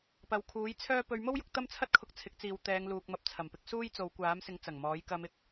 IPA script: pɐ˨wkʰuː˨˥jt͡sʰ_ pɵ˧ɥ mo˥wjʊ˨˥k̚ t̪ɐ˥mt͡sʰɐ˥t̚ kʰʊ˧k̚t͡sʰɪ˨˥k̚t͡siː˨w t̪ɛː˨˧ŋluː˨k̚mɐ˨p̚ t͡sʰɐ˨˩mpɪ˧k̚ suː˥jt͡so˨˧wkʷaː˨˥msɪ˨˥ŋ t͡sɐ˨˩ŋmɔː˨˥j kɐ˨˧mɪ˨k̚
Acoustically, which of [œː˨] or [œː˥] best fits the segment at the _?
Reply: œː˥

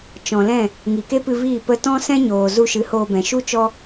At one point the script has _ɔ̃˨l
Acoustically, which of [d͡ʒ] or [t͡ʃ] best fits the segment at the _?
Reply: t͡ʃ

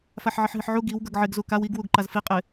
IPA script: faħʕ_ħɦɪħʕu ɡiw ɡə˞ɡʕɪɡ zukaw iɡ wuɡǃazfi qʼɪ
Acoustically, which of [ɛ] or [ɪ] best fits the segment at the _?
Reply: ɪ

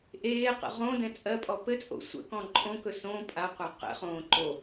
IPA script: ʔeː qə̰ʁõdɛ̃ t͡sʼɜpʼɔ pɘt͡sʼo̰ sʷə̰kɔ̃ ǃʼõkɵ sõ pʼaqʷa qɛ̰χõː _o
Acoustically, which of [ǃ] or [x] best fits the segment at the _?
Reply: ǃ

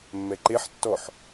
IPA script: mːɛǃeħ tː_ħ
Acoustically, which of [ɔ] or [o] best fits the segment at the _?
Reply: ɔ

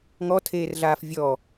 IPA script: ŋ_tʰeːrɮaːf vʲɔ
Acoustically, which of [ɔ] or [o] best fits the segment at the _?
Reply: ɔ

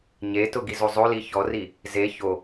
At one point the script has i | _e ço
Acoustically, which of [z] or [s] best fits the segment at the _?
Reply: z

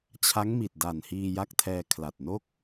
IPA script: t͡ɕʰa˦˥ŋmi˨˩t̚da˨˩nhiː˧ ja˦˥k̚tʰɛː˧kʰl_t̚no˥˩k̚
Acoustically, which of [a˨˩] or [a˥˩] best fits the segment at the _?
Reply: a˨˩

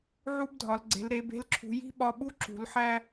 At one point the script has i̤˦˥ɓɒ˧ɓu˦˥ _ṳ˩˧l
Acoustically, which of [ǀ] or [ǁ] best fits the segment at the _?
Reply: ǁ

